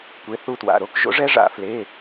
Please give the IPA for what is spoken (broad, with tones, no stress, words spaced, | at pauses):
kʷe˨˥θu˧twa̰˩˧˩ɾo˦˥k ʒo̰˨˥ʐɛ˦˥ ʐa̰˨˩˦fle˩˧˩